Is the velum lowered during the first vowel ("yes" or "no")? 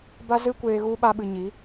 no